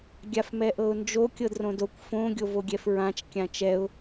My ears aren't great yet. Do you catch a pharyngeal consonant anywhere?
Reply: no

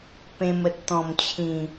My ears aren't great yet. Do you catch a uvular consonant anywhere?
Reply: no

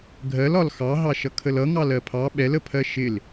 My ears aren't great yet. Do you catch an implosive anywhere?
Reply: yes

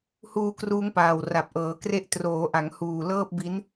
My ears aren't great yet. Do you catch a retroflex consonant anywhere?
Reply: no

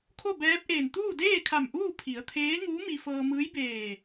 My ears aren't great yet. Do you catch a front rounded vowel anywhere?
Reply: no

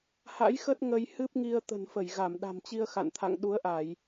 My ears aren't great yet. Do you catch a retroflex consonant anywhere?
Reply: no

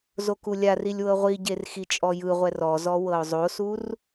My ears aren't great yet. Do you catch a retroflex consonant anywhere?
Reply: no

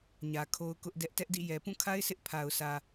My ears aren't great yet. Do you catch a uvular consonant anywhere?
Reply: no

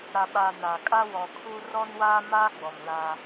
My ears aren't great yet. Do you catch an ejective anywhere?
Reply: yes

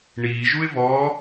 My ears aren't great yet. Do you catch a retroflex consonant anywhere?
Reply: yes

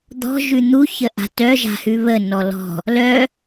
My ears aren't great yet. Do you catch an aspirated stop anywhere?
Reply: no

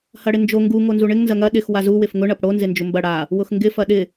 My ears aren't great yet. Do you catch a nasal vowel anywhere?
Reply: no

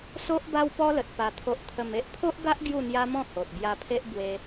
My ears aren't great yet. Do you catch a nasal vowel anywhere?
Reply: yes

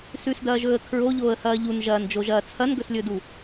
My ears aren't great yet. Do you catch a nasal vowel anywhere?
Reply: no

